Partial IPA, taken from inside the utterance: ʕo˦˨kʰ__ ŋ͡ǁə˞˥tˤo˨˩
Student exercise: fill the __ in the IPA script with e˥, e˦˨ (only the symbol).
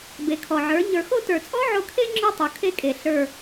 e˥